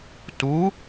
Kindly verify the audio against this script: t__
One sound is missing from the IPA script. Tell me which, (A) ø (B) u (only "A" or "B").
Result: B